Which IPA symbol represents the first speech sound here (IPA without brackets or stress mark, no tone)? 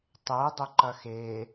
tˤ